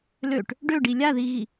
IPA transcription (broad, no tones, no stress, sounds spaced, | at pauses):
l ø ʈ | ɖ ø ɖ i lʲ a ð i ɣ i